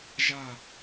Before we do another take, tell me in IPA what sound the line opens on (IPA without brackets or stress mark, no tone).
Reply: ʒ